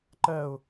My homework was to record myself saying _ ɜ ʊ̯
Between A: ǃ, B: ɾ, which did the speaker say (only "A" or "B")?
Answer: A